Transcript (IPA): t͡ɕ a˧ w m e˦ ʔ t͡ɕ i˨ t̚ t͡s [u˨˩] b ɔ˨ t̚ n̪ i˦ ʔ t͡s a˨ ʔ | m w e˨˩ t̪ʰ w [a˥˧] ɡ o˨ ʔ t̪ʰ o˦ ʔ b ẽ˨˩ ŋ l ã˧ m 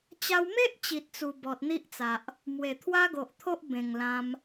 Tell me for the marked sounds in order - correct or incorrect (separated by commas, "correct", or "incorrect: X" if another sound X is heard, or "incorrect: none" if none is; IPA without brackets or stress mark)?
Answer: correct, incorrect: a˦